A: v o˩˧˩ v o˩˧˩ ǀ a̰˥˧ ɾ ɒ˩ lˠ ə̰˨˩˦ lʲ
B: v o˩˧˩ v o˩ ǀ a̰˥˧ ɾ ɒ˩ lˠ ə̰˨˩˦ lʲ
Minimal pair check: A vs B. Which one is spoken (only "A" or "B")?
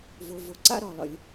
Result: A